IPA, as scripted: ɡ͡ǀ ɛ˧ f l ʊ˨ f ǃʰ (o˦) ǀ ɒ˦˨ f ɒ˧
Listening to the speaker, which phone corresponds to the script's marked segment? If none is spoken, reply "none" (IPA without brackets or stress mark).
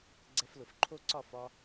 o˦